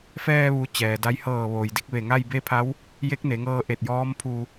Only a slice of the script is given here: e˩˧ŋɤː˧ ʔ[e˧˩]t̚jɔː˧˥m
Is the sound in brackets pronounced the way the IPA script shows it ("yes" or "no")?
yes